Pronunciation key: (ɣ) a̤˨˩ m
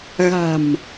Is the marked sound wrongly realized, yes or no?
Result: no